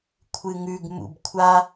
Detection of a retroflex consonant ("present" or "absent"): absent